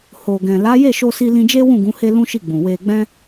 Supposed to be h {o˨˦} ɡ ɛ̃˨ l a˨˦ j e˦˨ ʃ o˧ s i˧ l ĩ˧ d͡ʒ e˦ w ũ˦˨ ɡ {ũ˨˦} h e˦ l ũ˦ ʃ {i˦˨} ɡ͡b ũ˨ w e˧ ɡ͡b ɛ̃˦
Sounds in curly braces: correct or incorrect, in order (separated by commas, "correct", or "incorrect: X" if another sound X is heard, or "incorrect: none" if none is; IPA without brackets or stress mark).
incorrect: o˨, correct, correct